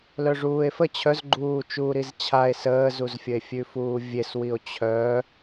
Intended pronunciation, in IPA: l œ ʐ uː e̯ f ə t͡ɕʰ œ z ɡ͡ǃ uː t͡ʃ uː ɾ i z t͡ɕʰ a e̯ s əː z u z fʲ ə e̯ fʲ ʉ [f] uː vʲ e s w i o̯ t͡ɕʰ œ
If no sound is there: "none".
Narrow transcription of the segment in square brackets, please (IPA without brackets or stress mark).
f